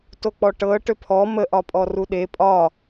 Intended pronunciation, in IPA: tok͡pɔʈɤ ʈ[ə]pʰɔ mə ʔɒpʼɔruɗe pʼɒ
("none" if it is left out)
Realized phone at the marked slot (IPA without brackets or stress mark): ø